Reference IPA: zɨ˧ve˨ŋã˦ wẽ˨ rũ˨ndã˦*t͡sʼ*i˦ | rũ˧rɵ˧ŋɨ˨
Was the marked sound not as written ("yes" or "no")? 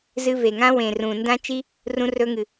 yes